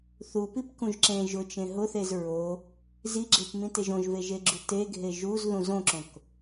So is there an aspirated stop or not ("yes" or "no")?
no